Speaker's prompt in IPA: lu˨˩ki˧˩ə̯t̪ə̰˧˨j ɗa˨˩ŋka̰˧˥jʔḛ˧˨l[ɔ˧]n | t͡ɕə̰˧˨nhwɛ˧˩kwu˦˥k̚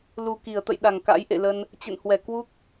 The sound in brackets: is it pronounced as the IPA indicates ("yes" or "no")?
no